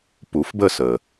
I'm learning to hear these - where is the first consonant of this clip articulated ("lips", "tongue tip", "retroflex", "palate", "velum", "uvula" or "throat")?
lips